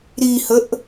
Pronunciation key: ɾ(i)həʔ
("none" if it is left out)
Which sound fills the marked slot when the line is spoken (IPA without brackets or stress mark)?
i